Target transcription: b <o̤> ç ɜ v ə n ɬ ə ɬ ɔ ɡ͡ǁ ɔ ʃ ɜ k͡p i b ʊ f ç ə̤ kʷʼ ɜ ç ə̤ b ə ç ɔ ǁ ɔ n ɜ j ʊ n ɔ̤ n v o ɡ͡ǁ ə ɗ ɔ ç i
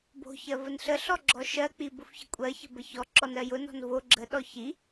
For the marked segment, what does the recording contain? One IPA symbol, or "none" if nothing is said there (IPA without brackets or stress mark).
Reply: o̤